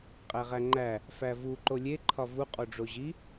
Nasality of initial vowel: oral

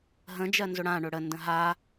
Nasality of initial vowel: nasal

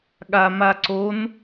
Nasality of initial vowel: oral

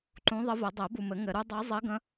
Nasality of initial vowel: nasal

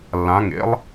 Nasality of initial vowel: nasal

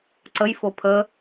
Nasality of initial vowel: oral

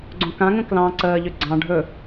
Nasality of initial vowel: nasal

